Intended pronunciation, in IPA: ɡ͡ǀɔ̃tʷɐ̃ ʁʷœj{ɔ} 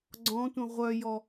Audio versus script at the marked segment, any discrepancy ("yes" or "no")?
no